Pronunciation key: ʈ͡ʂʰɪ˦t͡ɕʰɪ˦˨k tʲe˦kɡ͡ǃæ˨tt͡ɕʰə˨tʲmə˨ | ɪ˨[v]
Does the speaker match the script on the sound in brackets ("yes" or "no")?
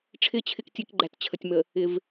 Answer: yes